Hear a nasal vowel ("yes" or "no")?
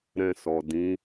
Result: yes